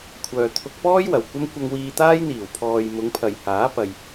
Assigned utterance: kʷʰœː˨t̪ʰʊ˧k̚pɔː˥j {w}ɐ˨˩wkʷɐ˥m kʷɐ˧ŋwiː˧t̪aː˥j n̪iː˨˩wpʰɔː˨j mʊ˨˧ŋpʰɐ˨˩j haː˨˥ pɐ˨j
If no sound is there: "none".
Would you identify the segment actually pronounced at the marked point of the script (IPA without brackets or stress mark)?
w